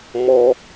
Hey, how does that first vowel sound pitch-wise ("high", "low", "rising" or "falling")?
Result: high